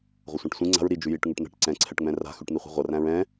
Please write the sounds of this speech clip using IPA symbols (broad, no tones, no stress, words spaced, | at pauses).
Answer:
ʁʷʌsʷãʈsʷĩ ŋ͡ǀa̤ɹ ɾi d͡ʒʉjiʈ ŋʉʈn̪æ̤ʈ ǀɛ̃ ǀʰɛʈŋ͡mɛ̃ra̤ xʉʈn̪iχʷi̤ʁʷʌ ræ̃ɹɛ̃